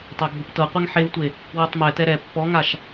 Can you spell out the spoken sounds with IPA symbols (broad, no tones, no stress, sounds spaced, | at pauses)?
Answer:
tˤ a ɡʱ u p t ɤ qʷ ɛ ŋ ħ e v tʷ e | w ɯ tˤ m ɛ t ɛ ɾ ɛ pː ɔ ŋ a ʃ